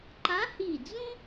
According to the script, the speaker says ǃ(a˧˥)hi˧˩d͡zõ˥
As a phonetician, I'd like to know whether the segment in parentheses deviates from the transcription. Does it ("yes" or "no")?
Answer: no